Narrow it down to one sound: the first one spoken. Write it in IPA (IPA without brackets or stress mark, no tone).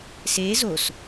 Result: s